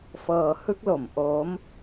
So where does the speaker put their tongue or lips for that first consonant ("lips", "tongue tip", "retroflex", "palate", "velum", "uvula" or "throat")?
lips